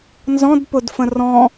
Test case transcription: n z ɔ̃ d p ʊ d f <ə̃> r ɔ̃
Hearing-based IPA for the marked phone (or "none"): ə̃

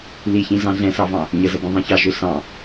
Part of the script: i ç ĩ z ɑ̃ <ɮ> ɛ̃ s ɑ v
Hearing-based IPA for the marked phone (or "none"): ɮ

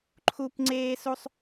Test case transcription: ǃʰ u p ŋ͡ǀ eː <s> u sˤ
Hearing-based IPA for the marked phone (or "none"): s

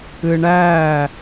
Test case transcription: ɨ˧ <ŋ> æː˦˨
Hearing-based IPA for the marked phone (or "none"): ɳ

